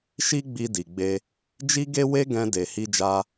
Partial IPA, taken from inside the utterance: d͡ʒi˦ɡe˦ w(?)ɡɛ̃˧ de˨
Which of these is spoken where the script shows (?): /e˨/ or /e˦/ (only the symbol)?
e˦